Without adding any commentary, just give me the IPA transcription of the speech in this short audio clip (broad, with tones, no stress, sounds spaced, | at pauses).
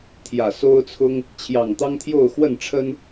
t̪ʰ j ä˨˩ s o˦ ʊ̯ t͡sʰ ʊ˦ ŋ | t͡ɕʰ j ɑ˨˩ ŋ t̪ ɑ˦ ŋ t̪ʰ j o˥˨ ʊ̯ x w ə˥˨ n ʈ͡ʂʰ ə˦ n